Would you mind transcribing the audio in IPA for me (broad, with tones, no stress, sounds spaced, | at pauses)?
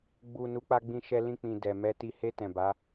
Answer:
ɡ͡b u˨ n u˨˦ k͡p a˧ ɡ͡b ĩ˧ ʃ ɛ˧ l ĩ˧ k͡p ĩ˨ d ɛ˨ m ɛ˧ t i˧ h e˧ t ɛ̃˨ b a˨˦